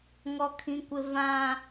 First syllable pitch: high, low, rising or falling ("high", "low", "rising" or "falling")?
high